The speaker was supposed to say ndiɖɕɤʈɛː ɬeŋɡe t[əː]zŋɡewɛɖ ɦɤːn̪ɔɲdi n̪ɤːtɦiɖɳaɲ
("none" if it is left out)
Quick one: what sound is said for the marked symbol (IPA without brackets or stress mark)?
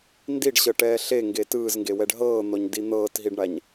ɯː